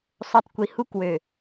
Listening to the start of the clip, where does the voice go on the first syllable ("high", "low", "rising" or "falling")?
low